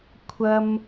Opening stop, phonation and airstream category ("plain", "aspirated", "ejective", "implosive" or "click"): aspirated